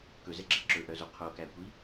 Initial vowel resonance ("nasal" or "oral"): oral